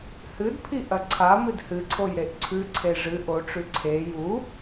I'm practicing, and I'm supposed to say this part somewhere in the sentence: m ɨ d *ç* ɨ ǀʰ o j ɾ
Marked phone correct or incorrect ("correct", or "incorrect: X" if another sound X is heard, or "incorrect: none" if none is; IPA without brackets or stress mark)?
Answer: incorrect: h